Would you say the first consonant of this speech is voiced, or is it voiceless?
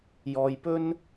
voiced